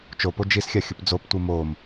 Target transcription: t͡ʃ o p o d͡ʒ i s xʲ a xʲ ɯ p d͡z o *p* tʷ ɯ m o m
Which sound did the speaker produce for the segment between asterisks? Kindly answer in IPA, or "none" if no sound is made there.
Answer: p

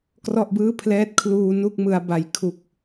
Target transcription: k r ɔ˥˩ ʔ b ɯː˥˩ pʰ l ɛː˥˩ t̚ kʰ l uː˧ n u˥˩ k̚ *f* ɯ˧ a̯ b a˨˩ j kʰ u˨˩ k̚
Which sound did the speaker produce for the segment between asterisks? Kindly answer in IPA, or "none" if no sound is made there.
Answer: m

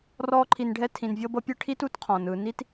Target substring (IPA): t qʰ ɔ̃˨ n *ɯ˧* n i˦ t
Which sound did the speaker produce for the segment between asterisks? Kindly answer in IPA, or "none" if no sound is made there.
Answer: ɯ˧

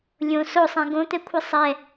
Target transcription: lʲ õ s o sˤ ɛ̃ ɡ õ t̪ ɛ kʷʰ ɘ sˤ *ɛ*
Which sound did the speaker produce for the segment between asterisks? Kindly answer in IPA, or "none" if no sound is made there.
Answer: ɛ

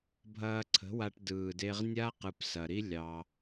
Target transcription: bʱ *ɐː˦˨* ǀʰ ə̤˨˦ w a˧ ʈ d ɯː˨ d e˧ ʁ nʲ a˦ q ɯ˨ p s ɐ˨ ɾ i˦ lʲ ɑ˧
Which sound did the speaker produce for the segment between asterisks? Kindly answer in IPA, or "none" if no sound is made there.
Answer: ɐː˧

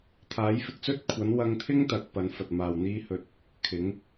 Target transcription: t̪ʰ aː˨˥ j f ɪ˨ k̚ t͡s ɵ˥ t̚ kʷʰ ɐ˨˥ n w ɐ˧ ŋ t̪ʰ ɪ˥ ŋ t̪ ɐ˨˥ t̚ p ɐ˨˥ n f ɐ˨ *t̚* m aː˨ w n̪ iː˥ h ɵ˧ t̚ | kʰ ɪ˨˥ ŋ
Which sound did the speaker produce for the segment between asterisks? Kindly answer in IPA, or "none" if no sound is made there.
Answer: t̚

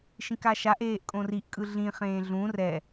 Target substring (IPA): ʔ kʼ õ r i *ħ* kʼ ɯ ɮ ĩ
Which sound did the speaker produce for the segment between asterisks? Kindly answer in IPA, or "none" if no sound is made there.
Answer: ʔ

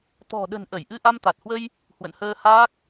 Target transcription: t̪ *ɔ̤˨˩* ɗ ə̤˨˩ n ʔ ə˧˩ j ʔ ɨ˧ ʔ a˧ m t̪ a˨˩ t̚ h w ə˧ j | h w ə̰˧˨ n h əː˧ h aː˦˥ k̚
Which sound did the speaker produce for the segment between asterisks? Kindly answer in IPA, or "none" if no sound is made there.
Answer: ɔ̤˨˩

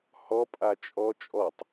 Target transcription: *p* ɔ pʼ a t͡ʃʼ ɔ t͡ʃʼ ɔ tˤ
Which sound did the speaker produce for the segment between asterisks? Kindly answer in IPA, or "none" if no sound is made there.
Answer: h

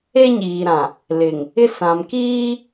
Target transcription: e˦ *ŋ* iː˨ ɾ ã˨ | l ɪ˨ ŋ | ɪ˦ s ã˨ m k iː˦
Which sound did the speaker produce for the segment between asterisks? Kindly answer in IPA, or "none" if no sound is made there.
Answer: ɲ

